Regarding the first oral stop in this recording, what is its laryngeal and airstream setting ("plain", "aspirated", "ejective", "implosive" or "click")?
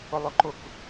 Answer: click